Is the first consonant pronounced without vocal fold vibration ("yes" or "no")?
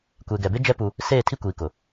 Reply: yes